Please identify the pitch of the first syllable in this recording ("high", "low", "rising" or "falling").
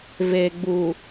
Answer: low